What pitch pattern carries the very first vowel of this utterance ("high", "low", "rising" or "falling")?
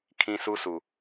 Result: high